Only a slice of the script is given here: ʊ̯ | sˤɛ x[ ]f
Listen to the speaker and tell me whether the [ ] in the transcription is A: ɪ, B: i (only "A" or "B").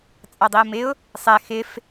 A